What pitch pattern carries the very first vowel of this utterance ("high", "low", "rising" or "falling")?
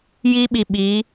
high